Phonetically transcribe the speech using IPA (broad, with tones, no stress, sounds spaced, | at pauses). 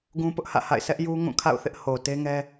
ɡ ũ˦ p ʊ˦ ʔ h ä̰˦˨ h a̰˦˨ ɪ̯ sʰ ɛ˦ ʔ j u˦ ŋ ũ˦˨ kʰ a̰˦˨ ʊ̯ θ ɪ˦ ʔ h o˨ t e˦ ŋ ɛ˦